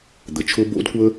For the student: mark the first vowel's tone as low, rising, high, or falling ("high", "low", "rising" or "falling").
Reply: low